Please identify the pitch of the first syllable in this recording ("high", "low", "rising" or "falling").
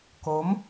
rising